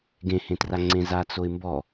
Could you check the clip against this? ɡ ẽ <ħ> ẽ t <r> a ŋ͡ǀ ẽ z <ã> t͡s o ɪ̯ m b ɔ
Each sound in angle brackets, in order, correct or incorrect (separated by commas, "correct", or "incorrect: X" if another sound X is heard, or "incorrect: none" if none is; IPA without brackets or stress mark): incorrect: h, correct, incorrect: a